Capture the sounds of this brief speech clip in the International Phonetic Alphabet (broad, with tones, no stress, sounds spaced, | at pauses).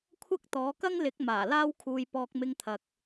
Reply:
kʷʰ ɐ˥ k̚ t̪ ɔː˨˥ k ɐ˥ ŋ l ɪ˨˥ k̚ m aː˨˩ l aː˥ w kʰ uː˧ j p ɔː˧ k̚ m ɪ˧ ŋ t̪ʰ ɐ˨ k̚